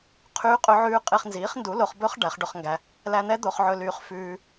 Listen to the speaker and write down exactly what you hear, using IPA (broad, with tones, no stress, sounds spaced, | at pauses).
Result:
qʰ yː˦˥ qʼ ɵ˦˥ ʕ ʉː˦˥ qʼ e˧ χ n z iː˨˥ χ n d u˨˥ l o˧ χ b ɵ˦˥ χ ɖ æ˨˥ χ ɖ ɵ˧ χ ŋ ɡ æ˧ | l æ˧ n̪ ɛ˦˥ d̪ o˧ χ ʕ ɵ˧ l yː˧ χ f ʉː˧